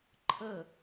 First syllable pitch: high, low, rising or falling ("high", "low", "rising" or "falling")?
falling